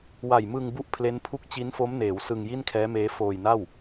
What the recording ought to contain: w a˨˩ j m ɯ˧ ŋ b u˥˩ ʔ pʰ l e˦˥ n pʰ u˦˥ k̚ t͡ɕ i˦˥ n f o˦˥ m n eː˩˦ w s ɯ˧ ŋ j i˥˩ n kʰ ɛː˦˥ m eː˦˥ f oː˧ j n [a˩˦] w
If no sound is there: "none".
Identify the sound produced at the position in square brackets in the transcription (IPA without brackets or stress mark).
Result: a˥˩